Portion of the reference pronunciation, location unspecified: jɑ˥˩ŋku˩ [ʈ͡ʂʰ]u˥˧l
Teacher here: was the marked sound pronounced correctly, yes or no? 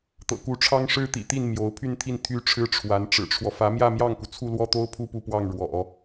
no